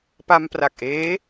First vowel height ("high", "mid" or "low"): low